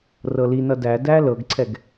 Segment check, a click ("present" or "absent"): present